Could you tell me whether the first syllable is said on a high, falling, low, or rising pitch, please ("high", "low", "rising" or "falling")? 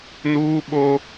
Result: high